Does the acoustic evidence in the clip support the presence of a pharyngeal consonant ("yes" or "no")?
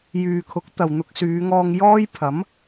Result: no